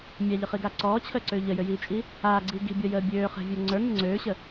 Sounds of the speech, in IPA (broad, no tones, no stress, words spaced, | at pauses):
mʲaʎəχiɡa ǀɔːt͡ɕʰəːǀøː ʎəjøjiːt͡ʃʼi | aːɡ͡ǀiː ɡi̤bʲɔjəː bʲøːχɛ̤vʲə˞ ŋ͡ǀə˞ŋə ŋ͡ǀøːɕə